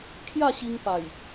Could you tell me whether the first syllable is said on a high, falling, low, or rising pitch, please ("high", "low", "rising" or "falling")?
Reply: falling